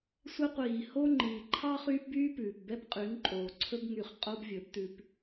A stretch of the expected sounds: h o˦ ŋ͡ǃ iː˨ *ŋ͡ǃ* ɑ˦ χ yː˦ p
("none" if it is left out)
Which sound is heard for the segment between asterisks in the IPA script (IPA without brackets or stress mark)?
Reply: ǃʰ